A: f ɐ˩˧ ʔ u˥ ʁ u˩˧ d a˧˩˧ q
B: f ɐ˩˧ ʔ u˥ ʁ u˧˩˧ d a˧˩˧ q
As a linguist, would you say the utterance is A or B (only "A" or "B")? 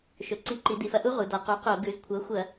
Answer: A